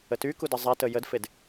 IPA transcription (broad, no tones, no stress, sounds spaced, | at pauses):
ə t y k u d ə zˤ ɛ t ə j ə d f e d